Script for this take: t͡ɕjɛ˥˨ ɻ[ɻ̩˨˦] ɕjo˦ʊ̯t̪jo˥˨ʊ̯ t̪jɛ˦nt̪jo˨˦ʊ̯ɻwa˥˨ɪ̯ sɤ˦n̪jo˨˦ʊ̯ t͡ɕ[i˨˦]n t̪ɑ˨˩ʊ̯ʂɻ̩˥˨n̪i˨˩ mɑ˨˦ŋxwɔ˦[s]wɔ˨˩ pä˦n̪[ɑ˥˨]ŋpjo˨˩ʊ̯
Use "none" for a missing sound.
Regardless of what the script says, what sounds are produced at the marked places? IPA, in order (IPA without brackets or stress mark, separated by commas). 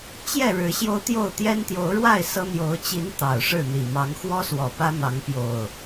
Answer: ɻ̩˨˦, i˨˦, s, ɑ˨˦